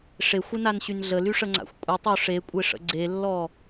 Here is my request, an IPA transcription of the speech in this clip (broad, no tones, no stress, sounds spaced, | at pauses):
ʂ e xʷ ɪ n a n ɕ y n ɮ ə l y ʂ ə ŋ͡ǀ a̰ xʷ kʷʼ ə tˤ o ʂ e kʷʼ e ʂ ə̰ ɡ͡ǀ e lː ɔ